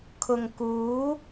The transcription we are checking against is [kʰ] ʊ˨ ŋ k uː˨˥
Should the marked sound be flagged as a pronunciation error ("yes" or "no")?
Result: no